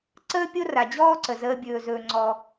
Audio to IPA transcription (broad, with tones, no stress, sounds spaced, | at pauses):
ǀ əː˥ pʲ o˥ r a˩ d͡ʑ ɔː˥ ǀ ə˩ z əː˨ bʲ ɵː˩ z ɵː˩ ŋ͡ǀ ɔ˩